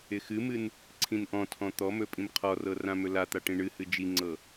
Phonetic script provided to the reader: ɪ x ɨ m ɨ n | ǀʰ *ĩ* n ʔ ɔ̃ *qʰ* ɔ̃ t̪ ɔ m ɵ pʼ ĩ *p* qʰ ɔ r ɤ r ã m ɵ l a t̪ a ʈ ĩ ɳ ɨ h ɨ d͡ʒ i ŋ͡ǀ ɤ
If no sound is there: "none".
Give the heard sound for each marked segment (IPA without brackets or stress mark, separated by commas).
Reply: ĩ, tʰ, m